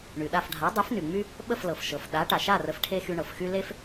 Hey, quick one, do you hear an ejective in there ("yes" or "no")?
no